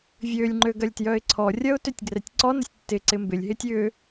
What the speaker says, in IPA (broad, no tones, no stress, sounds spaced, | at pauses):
vʲ ø lʲ ŋ͡ǃ ø ɡ ɐ lʲ t j œ ɪ̯ ǀʰ ɔ rʲ ɐ ʊ̯ t ø tʲ ɡ r ɛ tʲ ǀ ɔ n ə sʲ tː ɪ ǀ ɪ m b ɪ lʲ ɦ ɪ tʲ ʏ